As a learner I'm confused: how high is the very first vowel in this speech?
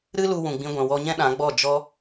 high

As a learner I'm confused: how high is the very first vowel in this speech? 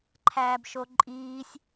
low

